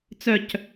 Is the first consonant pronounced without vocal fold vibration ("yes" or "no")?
yes